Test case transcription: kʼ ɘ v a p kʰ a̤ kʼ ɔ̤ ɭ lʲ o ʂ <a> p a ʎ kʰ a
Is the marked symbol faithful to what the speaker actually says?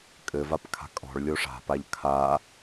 no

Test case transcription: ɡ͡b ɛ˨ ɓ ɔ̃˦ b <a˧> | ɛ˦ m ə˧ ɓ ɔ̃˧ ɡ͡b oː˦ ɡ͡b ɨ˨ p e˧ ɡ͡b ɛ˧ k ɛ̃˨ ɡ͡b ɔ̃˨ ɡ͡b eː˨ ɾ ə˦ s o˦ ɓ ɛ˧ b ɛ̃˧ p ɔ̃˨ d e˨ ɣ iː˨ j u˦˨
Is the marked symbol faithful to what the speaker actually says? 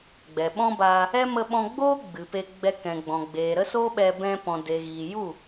no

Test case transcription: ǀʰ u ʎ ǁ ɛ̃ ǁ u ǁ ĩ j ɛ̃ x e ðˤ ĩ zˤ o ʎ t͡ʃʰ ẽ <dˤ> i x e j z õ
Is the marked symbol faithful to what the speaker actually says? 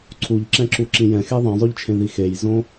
no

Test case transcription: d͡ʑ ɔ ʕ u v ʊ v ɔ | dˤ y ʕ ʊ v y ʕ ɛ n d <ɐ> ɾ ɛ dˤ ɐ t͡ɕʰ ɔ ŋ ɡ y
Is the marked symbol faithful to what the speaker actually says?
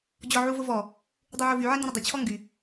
no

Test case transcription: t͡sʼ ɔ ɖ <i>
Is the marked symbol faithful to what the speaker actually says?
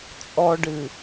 no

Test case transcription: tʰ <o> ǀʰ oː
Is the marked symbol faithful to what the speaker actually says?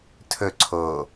no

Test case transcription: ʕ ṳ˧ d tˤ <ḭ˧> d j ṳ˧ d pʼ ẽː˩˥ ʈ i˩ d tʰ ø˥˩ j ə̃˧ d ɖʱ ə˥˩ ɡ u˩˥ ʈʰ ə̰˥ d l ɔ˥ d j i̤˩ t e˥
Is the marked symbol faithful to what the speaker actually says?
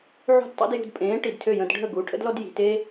yes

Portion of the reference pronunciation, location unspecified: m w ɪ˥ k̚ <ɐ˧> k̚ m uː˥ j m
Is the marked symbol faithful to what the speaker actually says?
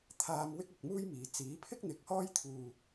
yes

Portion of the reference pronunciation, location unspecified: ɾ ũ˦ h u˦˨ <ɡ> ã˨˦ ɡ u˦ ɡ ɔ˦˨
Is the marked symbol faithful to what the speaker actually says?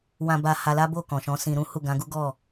yes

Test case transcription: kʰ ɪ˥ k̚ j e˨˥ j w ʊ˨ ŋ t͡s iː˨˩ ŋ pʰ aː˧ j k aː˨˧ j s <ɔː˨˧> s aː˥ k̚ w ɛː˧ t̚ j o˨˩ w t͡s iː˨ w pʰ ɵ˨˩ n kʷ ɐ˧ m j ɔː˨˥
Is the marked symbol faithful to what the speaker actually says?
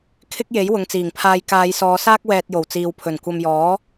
yes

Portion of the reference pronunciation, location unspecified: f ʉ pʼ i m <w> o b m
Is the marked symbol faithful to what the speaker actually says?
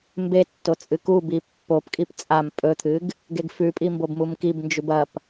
no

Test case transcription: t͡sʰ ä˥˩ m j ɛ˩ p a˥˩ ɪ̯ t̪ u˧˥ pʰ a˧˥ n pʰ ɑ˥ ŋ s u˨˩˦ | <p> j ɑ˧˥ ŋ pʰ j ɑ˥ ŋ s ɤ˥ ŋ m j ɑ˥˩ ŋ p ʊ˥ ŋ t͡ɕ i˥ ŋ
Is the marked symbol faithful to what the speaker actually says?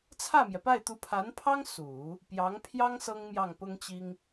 yes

